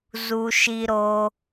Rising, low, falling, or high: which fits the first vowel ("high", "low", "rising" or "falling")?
high